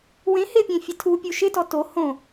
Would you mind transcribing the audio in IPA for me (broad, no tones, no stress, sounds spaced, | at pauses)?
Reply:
w ẽ h ɪ pʲ ẽ fʲ ɛ tʰ u pʲ u ʃ ɪ t ɔ t o h õ